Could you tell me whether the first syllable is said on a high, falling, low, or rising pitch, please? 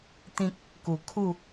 high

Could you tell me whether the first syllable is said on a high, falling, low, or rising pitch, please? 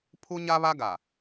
high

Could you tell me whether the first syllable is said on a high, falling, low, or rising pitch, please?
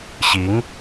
rising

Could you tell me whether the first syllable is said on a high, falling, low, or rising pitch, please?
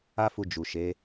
high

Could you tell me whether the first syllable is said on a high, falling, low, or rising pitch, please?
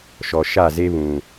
low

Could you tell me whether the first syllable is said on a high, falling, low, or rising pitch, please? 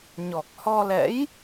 low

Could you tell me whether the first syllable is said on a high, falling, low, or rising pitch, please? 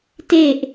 falling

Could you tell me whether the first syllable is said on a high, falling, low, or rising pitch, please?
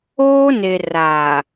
high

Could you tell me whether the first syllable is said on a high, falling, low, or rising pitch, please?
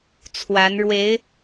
rising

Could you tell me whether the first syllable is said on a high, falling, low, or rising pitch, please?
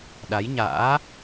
rising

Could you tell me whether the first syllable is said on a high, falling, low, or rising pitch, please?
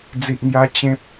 low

